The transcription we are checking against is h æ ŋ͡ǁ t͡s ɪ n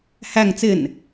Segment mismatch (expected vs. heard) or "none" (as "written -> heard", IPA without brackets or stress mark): ŋ͡ǁ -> ŋ